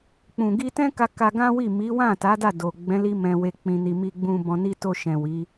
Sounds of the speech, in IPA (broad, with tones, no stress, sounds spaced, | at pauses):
k͡p ũ˨ ɡ i˧ t ɛ̃˦ k a˧ k a˧ ɡ ã˦ w i˦˨ m i˨˦ w ã˦˨ t a˨˦ d a˦˨ d o˨ ɡ͡b ɛ̃˨˦ l i˧ m ɛ̃˧ w e˧ k͡p ĩ˧ n i˧ m i˧ ɡ͡b ũ˧ b ɔ̃˧ n i˦ t o˧ ʃ ɛ̃˨ w i˨˦